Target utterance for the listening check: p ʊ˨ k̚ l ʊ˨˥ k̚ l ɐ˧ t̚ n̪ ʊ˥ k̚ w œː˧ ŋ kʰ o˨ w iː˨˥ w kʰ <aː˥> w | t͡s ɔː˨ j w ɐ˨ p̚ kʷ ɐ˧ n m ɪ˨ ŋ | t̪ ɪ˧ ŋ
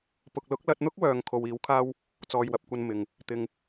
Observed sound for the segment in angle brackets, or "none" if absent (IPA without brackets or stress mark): aː˥